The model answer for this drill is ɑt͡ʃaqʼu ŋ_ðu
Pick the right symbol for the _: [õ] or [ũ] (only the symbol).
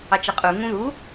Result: ũ